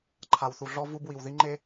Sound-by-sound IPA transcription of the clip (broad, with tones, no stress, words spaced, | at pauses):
ǃʰa˨wθu˨ɮɔ˦ vu˦bwi˨w ði˦ŋ͡ǃe˦